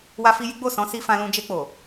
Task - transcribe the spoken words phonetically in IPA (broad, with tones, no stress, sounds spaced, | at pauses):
w a˧ f i˧ j i˦ ɡ͡b o˦˨ s ɔ̃˨˦ s i˧ f ã˧ l ũ˧ d͡ʒ e˧ k͡p o˨